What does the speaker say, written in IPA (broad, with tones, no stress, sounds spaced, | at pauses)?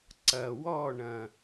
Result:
ǀ ɐ˨˩ w ɔ˥˨ ɳ ɐ̃˨˩